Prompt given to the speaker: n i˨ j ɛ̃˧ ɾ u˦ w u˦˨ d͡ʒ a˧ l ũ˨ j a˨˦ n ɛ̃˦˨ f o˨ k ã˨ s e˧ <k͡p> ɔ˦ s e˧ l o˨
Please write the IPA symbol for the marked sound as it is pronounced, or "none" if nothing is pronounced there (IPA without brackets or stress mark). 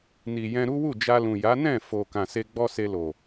ɡ͡b